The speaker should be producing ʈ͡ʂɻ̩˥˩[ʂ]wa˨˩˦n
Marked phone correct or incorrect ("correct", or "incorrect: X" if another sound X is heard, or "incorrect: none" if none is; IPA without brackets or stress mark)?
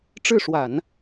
correct